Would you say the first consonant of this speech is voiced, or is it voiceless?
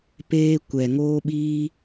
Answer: voiceless